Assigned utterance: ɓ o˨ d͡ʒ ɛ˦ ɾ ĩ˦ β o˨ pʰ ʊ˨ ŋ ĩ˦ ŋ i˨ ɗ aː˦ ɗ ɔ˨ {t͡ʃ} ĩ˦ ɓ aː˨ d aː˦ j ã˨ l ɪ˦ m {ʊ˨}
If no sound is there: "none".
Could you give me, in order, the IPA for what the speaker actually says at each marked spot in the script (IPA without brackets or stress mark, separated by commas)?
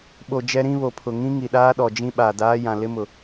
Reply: d͡ʒ, ʊ˨